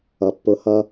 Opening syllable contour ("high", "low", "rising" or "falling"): low